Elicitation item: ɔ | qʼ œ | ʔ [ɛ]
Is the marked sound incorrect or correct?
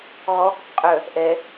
correct